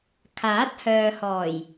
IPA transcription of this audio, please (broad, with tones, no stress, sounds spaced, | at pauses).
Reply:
kʰ aː˨˥ t̚ h œː˨ h ɔː˨˩ j